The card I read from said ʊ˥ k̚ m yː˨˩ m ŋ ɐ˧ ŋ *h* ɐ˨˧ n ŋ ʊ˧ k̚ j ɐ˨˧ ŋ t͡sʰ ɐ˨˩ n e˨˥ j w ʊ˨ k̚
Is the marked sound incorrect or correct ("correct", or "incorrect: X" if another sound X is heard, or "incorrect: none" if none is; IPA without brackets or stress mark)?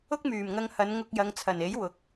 correct